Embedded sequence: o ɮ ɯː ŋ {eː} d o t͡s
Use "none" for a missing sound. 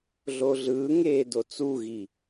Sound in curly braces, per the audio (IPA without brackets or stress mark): eː